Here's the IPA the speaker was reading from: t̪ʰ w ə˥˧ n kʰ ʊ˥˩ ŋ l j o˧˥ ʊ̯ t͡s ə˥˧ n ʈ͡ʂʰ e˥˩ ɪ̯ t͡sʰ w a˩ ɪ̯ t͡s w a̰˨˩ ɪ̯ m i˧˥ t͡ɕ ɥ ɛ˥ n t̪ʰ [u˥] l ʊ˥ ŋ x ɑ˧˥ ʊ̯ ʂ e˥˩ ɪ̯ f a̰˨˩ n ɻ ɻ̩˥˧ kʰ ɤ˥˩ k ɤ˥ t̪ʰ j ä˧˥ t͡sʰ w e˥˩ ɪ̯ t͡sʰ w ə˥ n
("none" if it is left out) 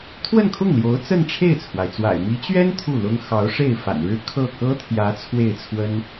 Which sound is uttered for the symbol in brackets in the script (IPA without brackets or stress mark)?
u˥˩